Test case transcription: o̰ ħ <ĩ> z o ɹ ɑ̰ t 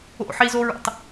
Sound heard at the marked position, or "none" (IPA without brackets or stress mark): i